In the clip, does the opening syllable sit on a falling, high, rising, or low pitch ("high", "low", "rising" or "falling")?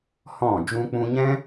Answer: falling